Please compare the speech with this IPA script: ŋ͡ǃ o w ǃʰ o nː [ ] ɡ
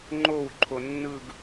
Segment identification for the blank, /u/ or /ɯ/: ɯ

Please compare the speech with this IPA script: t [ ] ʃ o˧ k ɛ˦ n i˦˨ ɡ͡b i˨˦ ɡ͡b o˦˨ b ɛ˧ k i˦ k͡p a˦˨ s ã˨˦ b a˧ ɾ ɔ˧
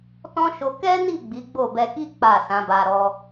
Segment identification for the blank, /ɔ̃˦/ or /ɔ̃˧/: ɔ̃˦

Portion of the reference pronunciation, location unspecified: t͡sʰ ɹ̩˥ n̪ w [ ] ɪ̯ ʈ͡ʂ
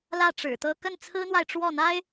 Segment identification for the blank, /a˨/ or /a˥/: a˨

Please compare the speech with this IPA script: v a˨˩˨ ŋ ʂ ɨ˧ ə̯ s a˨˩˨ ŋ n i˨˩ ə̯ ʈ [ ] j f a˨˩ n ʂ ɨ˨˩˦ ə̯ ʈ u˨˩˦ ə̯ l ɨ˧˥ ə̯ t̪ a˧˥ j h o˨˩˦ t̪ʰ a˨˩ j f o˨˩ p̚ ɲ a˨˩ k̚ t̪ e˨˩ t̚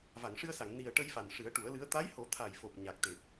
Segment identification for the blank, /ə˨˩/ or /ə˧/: ə˧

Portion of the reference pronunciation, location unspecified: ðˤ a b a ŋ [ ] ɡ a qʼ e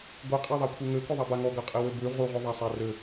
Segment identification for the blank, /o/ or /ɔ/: ɔ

